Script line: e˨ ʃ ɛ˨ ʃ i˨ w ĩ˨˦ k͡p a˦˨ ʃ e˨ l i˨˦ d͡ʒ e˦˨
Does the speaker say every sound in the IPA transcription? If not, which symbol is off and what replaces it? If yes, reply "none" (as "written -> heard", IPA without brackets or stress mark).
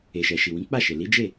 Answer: none